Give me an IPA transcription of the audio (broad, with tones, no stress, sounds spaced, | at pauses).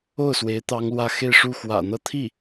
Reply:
o˥˩ ʊ̯ s w e˧˥ ɪ̯ t̪ ɑ˥ ŋ l w ä˥˧ x e˥˧ ɪ̯ ʂ u˥˩ x w ä̰˨˩ n̪ ɤ˥ t̪ʰ i˥˩